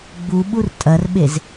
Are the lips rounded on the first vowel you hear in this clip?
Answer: yes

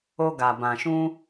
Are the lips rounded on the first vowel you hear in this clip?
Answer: yes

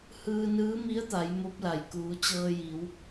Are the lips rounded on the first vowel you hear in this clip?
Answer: no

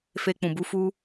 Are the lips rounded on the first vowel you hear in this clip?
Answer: no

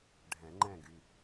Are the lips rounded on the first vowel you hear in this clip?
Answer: no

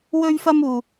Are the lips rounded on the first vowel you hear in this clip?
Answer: yes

